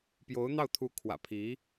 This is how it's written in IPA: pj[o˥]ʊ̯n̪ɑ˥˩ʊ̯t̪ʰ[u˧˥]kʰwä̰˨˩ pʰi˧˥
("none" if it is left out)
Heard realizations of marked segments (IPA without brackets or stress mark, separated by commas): o˧˥, u˧˥